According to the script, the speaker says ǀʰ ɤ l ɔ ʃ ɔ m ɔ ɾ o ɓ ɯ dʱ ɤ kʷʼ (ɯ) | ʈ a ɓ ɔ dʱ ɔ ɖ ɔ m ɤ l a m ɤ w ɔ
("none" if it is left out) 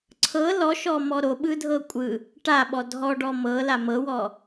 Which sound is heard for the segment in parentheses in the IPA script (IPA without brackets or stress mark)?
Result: ɯ